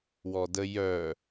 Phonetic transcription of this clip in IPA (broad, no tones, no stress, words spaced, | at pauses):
wɔdə jœ